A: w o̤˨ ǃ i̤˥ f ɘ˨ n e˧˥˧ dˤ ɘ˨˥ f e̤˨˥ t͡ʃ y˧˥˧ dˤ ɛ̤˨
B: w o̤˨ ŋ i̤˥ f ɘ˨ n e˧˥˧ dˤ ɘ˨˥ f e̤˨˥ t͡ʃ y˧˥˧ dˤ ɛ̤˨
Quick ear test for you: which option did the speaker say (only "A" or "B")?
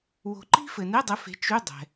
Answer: A